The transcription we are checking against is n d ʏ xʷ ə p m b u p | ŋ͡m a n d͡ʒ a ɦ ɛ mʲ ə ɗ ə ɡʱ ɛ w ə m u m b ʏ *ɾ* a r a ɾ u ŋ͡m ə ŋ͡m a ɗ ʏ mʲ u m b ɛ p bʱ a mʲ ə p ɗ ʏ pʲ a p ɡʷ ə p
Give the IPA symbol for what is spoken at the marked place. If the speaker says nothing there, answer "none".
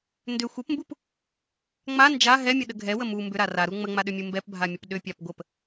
ɾ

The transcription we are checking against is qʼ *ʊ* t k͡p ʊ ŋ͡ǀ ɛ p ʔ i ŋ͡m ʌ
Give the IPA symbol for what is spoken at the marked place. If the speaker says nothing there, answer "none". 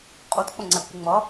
u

